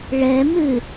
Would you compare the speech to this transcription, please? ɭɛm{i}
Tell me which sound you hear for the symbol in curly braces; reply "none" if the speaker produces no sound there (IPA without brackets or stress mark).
ɨ